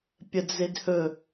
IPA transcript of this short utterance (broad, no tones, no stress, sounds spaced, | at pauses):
pʲ ə d͡z e d h ɵ